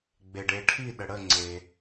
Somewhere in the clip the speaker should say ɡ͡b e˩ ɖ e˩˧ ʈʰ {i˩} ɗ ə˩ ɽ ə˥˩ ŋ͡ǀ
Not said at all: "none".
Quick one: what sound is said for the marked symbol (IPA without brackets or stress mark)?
i˥˩